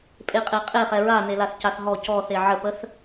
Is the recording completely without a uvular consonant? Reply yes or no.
no